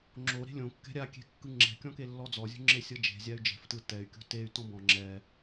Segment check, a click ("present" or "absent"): present